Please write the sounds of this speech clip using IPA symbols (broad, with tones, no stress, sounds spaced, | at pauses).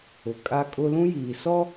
ʊ˨ kʼ a˦ kʼ ʊ˦ l ũ˦ j iː˨ s ɔ˦